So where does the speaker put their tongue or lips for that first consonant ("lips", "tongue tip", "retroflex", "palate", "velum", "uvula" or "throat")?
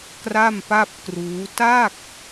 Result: velum